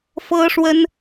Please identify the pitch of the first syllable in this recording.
high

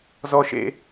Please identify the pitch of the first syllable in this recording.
low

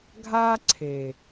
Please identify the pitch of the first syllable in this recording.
high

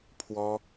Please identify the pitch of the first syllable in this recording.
high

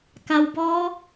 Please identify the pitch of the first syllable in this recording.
low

